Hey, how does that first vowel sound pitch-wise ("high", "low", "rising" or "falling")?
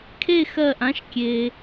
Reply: falling